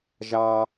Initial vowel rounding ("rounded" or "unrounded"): unrounded